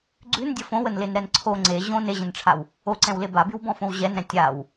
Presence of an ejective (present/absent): absent